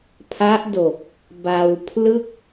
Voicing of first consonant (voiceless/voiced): voiceless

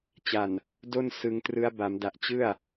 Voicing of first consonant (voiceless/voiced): voiceless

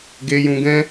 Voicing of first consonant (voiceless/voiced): voiced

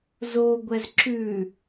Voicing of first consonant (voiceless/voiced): voiced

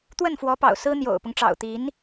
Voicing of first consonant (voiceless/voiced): voiceless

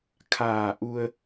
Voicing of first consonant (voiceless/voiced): voiceless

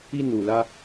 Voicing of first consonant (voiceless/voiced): voiced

